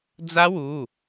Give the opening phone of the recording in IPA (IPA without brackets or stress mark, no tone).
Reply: d͡z